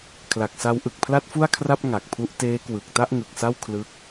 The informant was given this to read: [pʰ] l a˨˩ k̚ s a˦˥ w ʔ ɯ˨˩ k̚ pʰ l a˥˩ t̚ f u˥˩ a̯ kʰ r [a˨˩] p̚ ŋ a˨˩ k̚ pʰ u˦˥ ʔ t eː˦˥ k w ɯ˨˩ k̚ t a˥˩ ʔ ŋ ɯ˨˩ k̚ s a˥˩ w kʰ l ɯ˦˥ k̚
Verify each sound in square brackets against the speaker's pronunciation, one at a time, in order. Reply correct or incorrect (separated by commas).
incorrect, incorrect